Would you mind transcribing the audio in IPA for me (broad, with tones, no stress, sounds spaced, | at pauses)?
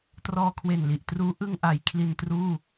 t r ɔː˧ kʰ w e˨˩ n l i˨˩ ʔ t r uː˦˥ ʔ ɯ˧ ŋ ʔ a˩˦ j kʰ l i˧ n t r uː˥˩